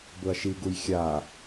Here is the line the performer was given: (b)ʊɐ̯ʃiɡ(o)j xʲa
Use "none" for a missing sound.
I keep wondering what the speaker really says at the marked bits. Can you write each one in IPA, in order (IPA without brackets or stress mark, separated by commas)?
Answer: b, u